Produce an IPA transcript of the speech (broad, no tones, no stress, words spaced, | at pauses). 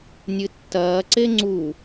nʲɨtːɐːǀe ŋ͡ǀu